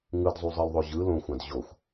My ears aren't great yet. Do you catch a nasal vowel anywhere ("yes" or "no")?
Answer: yes